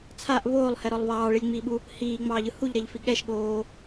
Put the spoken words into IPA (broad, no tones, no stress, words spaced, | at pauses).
t͡sʰaʔ βoːlˠhɛɾɔlˠ βɑːɭilʲŋ͡miːɓu | hiːŋ͡mɑːʎɯ huʎɾɛʎfi ɠɛʃɠoː